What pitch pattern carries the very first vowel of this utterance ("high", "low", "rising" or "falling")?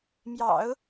low